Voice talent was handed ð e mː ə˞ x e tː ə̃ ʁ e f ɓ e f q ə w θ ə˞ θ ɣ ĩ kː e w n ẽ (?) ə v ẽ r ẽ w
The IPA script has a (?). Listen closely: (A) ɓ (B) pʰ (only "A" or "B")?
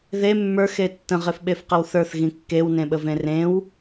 A